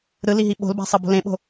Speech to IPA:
ɾ ɯ l i ɦ i ɓ o̤ l b a̤ sˤ ʌ b o̤ l ẽ ɓ o̤

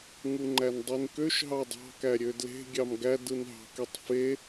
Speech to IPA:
ŋ u ŋ͡ǃ æ n dˤ i n k ø ʃ ɦ ɑ dˤ ɑ̤ k æ ɾʲ ø d l e̤ ɡʲ ɑ m ɡ æ d ɯ n ɦ ɑ̤ k e tˤ f e

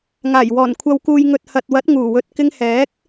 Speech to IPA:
ŋ aː˨˩ j w ɔː˨˩ n kʷʰ ɐ˨ w k uː˨ j ŋ ɵ˨ t̚ h ɐ˨ t̚ w ɐ˨˥ t̚ ŋ uː˨˩ w ɵ˨ t̚ k ɪ˧ ŋ h ɛː˨˥ k̚

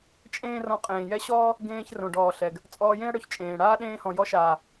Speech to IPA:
t͡ʃʼ ẽː˦ r ɔ̃˧ qʼ ẽː˨ j ɛ˦ ɕ ɔː˦ | ɡ ẽː˧ ç r õ˨ ɖ ɔː˨ ɬ ɛ˨ ɡ | t͡sʼ ɔː˧ j ẽ˦ ɐ̯ ɽ ɵ˧ ç t͡ʃʼ ẽː˨ ɽ aː˦ ɗ ẽː˧ h ɔ̃˨ j ɔ˧ ʃ aː˨

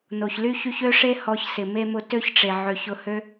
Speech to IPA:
n o˨ ç l y˦ ç y˦ ç ø˦ ʂ e˦ h ɔ˧ ç s ɪ˨ m e˦ m ʊ˦ t ø˦ ç ʈ͡ʂ e˨ ʕ ø˨ ç ʊ˧ h ø˦

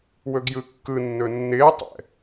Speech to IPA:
w ɵ ɡ j ɯ kː ɯ nː ɵ nː ɪː tˤ ɛ̰

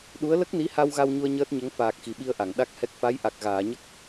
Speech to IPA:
ɗ u˧˥ ə̯ l ə˦˥ k̚ n i˧˥ h a˧ w ɣ a˧ w ɲ u˧ ə̯ ɲ əː˦˥ t̚ ɲ ə˧˥ ŋ f aː˨˩ k̚ x i˨˩˨ ɓ i˧ ə̯ ʔ a˨˩˨ ŋ ɗ a˦˥ k̚ h ɛ˦˥ k̚ f a˧˥ j ʔ a˨˩ k̚ ɣ aː˨˩˨ ɲ ə˦˥ k̚

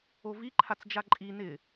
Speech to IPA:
o v i ǃʰ a t͡s d͡ʒ a ǃʼ i n ɪ

